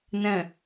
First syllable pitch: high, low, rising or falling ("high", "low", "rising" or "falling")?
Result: low